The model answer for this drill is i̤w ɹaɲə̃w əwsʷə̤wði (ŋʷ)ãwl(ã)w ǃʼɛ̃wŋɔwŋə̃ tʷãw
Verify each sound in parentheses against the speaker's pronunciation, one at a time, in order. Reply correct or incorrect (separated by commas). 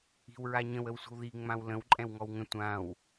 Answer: incorrect, incorrect